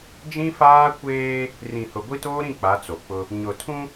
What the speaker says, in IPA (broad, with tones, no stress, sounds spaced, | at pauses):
d͡ʒ ĩ˦ f aː˦ kʷ eː˦ | r ĩ˨ h ʊ˨ ɡʷ i˦ t oː˦ ɾ ĩ˦˨ k͡p a˨˦ t͡s o˨ k͡p ʊ˦ | ɲ ʊ˨ tʰ ũ˦